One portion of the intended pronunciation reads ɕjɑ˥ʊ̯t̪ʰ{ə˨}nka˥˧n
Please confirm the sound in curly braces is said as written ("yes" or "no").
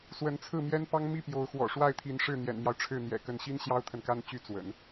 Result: yes